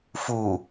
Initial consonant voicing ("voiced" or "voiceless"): voiceless